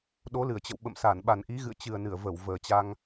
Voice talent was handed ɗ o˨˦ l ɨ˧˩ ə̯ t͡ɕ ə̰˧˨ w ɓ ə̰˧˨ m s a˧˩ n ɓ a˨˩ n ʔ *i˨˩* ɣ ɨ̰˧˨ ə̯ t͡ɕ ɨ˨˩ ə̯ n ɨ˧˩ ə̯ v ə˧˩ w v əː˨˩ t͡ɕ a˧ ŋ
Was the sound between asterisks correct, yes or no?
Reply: no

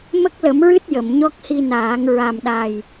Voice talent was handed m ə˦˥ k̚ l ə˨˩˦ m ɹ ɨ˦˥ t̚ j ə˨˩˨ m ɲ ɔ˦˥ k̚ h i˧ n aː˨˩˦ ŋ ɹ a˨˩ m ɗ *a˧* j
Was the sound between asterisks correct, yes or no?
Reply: no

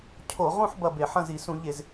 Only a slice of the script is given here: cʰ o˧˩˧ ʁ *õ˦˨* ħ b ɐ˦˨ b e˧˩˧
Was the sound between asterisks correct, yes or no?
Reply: no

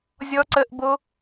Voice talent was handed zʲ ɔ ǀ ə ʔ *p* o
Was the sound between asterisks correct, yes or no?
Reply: no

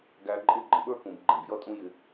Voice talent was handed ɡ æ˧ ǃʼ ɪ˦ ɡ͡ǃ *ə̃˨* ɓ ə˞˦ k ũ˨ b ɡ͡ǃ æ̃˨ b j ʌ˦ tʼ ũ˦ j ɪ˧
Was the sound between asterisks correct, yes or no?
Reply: yes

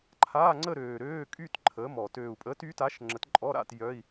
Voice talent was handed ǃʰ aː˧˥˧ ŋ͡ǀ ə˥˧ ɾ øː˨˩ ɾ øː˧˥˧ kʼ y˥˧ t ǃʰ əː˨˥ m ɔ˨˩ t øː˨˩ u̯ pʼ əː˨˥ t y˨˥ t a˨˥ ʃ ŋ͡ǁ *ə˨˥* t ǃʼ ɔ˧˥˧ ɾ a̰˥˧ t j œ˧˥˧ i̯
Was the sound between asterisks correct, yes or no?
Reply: yes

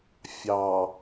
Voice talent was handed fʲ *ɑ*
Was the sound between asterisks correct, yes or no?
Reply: yes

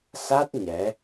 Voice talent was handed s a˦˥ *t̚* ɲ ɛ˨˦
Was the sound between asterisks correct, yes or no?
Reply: yes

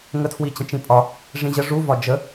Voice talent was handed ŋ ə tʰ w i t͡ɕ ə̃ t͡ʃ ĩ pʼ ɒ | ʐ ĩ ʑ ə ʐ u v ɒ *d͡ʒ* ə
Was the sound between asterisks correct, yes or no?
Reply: yes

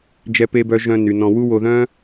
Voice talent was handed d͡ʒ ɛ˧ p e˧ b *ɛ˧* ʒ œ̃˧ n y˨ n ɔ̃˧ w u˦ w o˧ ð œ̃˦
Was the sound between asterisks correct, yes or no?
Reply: no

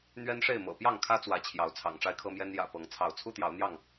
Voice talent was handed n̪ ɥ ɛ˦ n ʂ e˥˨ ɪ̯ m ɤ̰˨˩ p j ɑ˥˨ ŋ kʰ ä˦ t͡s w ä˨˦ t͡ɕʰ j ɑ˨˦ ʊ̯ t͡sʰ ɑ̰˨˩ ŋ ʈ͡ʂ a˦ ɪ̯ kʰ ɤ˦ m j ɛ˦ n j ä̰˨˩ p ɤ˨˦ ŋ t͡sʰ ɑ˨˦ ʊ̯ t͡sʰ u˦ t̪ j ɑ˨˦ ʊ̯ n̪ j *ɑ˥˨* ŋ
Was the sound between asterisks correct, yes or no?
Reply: yes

